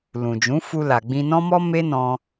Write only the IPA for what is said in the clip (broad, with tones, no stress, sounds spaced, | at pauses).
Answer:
l ũ˨ d͡ʒ ũ˨˦ f u˧ l a˨ ɡ͡b ĩ˧ n ɔ̃˦ m ɔ˦ m e˦ n ɔ̃˧